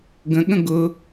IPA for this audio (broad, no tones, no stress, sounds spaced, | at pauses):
ɡ ə̃ ɠ ə̃ ɡ ʊ